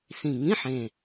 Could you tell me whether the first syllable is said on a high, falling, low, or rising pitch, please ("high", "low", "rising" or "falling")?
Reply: low